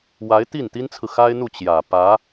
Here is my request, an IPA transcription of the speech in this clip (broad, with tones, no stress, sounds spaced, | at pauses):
w a˧˥ ɪ̯ t̪ i˥˩ n t̪ i˥ n t͡sʰ ɹ̩˨ x a˥ ɪ̯ n̪ u˥˩ t͡ɕ j ä˨˩ p ä˧˥